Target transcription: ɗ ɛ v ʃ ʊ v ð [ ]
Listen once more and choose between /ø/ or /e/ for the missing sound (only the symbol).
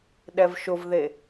e